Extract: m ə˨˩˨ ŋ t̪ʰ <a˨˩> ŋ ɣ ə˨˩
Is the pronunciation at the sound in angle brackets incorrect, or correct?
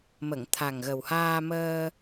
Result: correct